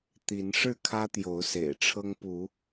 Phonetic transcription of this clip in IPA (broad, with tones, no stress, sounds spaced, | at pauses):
t̪ i˨˦ n ʂ ɻ̩˥˨ kʰ ä˦ t̪ j o˨˦ ʊ̯ s ḛ˨˩ ɪ̯ ʈ͡ʂʰ ɤ˦ ŋ p u˨˦